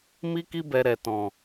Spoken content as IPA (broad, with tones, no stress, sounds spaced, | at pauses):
m i˦ k i˦ b ɛ˧ ɾ ɛ˨ t ɔ̃˨